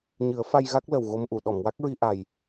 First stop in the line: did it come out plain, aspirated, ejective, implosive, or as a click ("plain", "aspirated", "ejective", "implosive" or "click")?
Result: plain